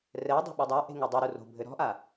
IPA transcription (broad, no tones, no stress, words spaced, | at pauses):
rɛdˤo̤ ɓɘdˤaʔe̤ ŋudˤoɾu ro̤ bʱɘɾɔ̤ʔa